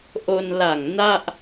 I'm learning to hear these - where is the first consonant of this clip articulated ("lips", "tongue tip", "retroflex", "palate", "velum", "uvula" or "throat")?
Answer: throat